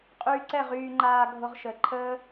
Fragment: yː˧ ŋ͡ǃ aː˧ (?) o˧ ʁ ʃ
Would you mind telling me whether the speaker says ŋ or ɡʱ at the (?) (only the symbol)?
ɡʱ